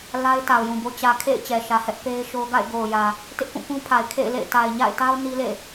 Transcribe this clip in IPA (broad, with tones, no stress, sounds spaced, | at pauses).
l a˦ ɪ̯ t a˨ ʊ̯ j ũ˨ b o˦ t͡ɕ ä˨ kʰ ḛ˦˨ ɪ̯ t͡ɕ ɛ˨ ʃ ä˨ h ɛ˦ ʔ p e˦ ɪ̯ ʃ o˦ ɡ a̰˦˨ ɪ̯ ɡ o˨ ʊ̯ j ä˨ | t ɪ˦ ʔ k ũ˦˨ k ũ˦ pʰ a˨ ɪ̯ kʰ ḛ˦˨ ɪ̯ l ḛ˦˨ ɪ̯ t a˨ ɪ̯ ɲ a̰˦˨ ɪ̯ t a˦ ʊ̯ n i˦ l ḛ˦˨